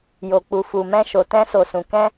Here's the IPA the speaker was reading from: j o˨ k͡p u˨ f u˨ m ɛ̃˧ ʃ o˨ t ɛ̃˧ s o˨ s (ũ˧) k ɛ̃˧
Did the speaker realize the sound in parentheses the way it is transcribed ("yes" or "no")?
no